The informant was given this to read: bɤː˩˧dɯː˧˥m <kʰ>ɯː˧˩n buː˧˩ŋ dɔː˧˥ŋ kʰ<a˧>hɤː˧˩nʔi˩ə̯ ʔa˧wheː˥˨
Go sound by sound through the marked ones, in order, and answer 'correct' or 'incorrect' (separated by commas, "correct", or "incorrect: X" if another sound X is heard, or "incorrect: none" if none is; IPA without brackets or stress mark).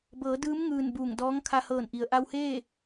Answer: incorrect: ŋ, correct